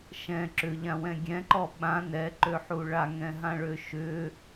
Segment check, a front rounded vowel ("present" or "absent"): present